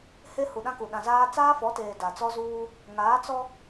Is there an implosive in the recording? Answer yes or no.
yes